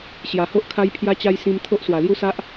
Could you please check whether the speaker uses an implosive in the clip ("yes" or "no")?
no